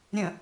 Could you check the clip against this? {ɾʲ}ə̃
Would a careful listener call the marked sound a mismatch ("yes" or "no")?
no